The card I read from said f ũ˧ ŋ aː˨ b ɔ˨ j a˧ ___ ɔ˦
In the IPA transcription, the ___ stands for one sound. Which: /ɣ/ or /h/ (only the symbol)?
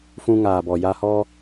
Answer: h